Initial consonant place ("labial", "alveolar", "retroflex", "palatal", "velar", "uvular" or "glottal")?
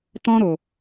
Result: alveolar